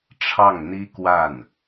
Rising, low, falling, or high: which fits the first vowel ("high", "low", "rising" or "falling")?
falling